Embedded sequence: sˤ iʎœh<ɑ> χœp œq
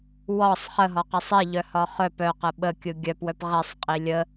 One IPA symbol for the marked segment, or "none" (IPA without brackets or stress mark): ɒ